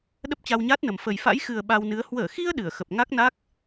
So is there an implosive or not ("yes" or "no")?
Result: yes